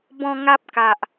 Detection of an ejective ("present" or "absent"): absent